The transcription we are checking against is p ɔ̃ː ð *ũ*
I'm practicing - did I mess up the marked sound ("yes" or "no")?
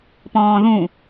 no